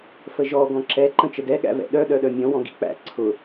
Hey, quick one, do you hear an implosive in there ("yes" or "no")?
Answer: yes